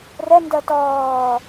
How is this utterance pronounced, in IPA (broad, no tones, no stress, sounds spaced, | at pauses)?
r ɛ n d ɜ t ɔː